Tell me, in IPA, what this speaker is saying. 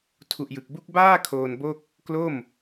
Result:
tʰ u˨˩ ʔ j ɯ˨˩ k̚ b u˦˥ k̚ b aː˥˩ kʰ oː˧ n b o˥˩ k̚ | k l o˥˩ m

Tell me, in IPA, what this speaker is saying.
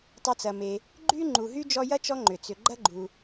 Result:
tˤ ɐ˦ t͡s ɐ˨ m e˨ | ɡ͡ǃ y˥ ŋ͡ǃ u˨ ɦ y˥ d͡ʒ ɔ˦ j ɐ˥ t͡ʃ ɔ˦ ŋ͡ǃ ʏ˩ t͡s ʏ˨ ɡ͡ǃ ɐ˥ ɡ͡ǃ u˩

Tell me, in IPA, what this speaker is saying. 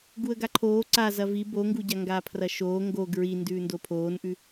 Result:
ɡ u ə̯ ɡ a ǃʰ oː ǀ a z ɐ v i b o ŋ ɡ u ɟ a ŋ ɡ aː pʰ r ɐ ʃ oː ŋ ɡ o ɡ ɹ i n d ʉː n d o pʰ oː n ʔ ʉ

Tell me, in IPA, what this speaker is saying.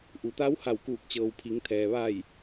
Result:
ʔ u˩˧ t̪ a˧˥ w h a˧˩ w k uː˧˩ k̚ t͡ɕ ɤː˩ w pʰ i˩˧ ŋ t̪ʰ ɛː˩ ʋ a˧˩ j

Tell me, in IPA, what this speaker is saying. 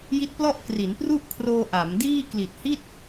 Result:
j i˦˥ t̚ p l ɔ˥˩ ʔ k r i˩˦ n p r u˥˩ ʔ kʰ r oː˧ ʔ a˩˦ m d iː˥˩ k l i˨˩ t̚ h i˥˩ t̚

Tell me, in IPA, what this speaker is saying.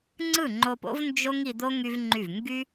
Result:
ŋ͡ǀ ɯ˦˨ ŋ͡ǃ o˧ p o̰˦ v n d͡ʒ o˦ ŋ i˧ d̪ o˦ ŋ y˦ v ŋ͡ǃ y˦˨ v ŋ ɡ y˦

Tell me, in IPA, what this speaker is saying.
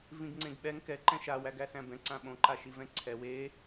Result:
v ĩ ɡ ŋ͡ǀ ẽ ɡ ɓ ɛ ŋ k ɛ ǃ ɛ̃ ʃ a w æ ɡ æ s æ̃ b ɛ̃ ǀ ã ɓ õ ǃ a ʃ i v ɛ̃ ǀʰ ɛ w e

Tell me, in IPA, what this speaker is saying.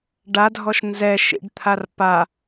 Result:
ɖ a dʱ ɔ ʃ n z ɛ ʃ ḭ ɖ t̪ʰ a r p a

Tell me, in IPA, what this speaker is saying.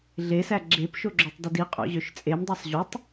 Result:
ɮ e s æ ɡ͡ǁ e p ʃ o ɡ͡ǁ o tˤ d ɯ d i qʼ o̰ ʑ ø ʃ t͡sʼ e m dˤ æ sˤ ʑ y tˤ

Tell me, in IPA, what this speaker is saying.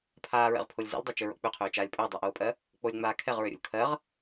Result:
pʰ aː ɹ ɛ̰ ʁ pʰ o lʲ z ɛ̰ lʲ dˤ a t͡ʃ ø ɹ o̰ k͡p ø qʰ øː t͡ʃ aː lʲ pʼ ø dˤ ə˞ ʔ oː pʼ ɜ | k͡p o lʲ ŋ͡m aː kʰ ɛ ʁ ɹ ø ɾʲ o̰ lʲ kʰ ɜ ʁ

